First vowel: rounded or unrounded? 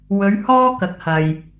rounded